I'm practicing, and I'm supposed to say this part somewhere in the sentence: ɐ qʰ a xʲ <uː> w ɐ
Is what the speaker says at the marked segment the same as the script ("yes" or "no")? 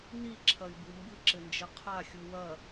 no